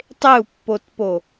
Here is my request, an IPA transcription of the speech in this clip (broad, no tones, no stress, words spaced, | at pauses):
tˤeu̯pːotpo